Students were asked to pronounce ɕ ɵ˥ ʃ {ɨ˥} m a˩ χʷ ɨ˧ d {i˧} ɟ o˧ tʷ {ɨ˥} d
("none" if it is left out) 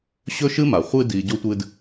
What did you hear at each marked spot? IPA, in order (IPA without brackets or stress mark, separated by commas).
ɨ˥, i˩, ɨ˧